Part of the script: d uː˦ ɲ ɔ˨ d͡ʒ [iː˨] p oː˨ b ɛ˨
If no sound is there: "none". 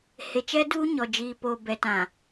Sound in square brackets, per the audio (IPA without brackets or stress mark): iː˨